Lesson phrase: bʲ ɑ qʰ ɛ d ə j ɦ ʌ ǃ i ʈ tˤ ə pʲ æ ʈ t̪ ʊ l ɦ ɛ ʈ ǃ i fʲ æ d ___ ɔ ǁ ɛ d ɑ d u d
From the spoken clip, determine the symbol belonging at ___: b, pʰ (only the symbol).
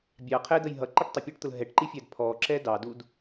pʰ